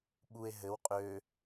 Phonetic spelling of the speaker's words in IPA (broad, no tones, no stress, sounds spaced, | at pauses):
ɓ u e̯ ɦ ɘ w qʼ ø